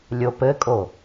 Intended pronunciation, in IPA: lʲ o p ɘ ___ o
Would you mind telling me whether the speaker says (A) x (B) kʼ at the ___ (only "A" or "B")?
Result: B